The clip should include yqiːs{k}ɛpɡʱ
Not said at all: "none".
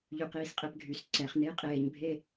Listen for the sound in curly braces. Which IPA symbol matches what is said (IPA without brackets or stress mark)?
qʼ